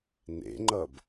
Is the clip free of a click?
no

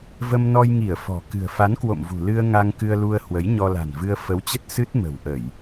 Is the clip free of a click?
yes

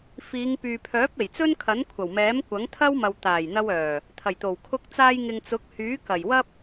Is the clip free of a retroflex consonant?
yes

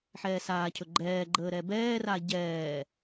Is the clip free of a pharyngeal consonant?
no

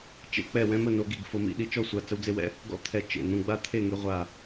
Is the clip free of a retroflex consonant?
yes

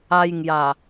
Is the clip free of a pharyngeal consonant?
yes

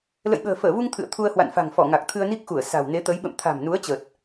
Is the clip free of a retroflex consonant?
yes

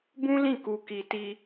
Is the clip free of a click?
yes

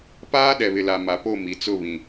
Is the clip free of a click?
yes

